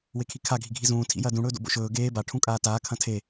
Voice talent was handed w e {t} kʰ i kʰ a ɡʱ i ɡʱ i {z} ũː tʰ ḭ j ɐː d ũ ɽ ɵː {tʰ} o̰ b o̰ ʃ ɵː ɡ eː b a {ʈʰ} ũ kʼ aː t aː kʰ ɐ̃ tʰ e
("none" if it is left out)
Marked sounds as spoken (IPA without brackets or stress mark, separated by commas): none, z, d, ʈʰ